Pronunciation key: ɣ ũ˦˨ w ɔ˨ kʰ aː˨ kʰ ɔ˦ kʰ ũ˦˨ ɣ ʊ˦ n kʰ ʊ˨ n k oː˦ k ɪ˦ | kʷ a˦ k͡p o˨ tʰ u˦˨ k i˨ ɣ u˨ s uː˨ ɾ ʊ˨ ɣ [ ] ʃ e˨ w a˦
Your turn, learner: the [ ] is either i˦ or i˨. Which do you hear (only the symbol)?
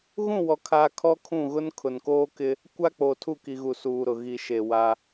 i˨